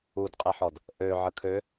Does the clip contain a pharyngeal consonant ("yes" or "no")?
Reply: yes